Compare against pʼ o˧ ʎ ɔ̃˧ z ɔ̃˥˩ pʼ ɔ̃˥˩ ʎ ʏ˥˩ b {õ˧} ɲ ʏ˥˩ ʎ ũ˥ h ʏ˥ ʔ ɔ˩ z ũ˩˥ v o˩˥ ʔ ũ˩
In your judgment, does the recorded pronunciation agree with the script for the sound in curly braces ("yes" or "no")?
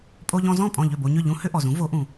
no